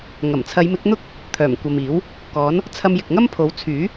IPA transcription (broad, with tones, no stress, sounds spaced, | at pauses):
ŋ ɐ˨˩ m t͡sʰ ɐ˨˧ j m ɪ˨˥ k̚ n̪ ʊ˥ k̚ | t̪ʰ œː˨˩ m kʷ ɐ˨ m iː˨˥ w | k ɔː˨˥ n | t͡sʰ ɐ˧ m j ɪ˨ k̚ ŋ ɐ˥ m pʰ o˨˥ w t͡sʰ yː˨˥